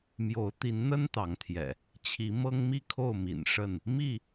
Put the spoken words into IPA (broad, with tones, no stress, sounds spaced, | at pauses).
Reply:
m j o˨˦ ʊ̯ t̪ i˨˦ n n̪ ə˦ n t̪ ɑ˨˦ ŋ t̪ʰ j ɛ̰˨˩ | t͡ɕʰ i˨˦ m ɤ˦ ŋ m i˥˨ kʰ o˥˨ ʊ̯ m ḭ˨˩ n ʂ ə˥˨ n | m i˥˨